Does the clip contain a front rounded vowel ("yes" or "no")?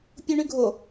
yes